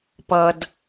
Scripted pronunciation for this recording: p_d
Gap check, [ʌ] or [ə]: ʌ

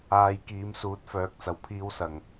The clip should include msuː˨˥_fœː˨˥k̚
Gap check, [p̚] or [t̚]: t̚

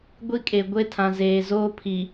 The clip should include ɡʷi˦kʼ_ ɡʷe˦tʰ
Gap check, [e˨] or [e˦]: e˨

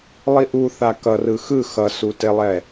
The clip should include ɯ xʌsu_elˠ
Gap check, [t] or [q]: t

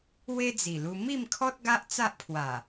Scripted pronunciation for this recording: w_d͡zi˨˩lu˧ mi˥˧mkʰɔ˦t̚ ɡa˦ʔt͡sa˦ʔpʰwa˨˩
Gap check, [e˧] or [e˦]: e˦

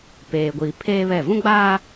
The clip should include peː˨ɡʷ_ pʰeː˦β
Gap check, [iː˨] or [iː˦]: iː˨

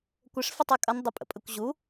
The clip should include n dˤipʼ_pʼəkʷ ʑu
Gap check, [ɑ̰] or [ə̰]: ə̰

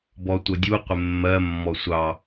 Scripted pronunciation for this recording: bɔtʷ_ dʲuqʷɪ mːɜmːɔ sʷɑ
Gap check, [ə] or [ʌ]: ʌ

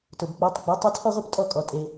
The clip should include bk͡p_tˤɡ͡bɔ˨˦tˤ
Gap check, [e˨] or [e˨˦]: e˨˦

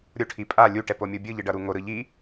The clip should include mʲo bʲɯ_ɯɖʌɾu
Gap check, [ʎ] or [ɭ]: ʎ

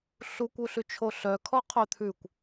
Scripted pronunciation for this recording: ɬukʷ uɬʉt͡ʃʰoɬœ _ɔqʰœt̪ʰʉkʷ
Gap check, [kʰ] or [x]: kʰ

